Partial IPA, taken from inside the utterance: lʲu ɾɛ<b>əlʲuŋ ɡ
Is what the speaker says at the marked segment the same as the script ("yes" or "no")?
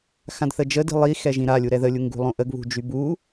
no